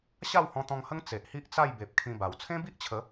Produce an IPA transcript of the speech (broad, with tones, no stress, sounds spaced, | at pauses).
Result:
ɕ a˥˧ w h ɔ̃˧ t̪ ɔ̃˧ ŋ h ə˦ ŋ t͡s e˨ ʔ h i˦ ʔ t͡s a˥˧ j b e˨ p̚ kʰ ĩ˧ b a˨˩ w t͡sʰ ẽ˦ b i˦ ʔ t͡ɕʰ ə˨˦